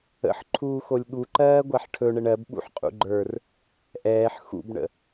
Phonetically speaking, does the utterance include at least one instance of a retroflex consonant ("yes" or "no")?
yes